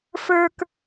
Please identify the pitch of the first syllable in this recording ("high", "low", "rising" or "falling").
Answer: high